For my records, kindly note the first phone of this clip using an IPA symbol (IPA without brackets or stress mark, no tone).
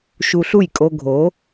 ʃ